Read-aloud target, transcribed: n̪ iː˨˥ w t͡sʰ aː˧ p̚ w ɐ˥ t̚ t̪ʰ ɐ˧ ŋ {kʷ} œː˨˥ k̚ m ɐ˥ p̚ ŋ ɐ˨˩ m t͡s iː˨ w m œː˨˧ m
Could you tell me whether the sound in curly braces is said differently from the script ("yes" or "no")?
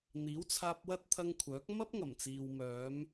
yes